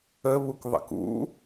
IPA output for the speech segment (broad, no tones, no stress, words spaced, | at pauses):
əβukðˤə̰k ṵ